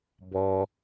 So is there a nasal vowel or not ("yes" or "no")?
no